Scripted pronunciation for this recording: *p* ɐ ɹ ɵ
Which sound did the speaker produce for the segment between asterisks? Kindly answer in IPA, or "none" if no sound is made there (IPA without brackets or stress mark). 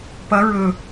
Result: p